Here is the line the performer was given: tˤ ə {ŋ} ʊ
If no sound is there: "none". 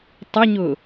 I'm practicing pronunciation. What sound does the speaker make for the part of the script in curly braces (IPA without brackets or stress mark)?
ɲ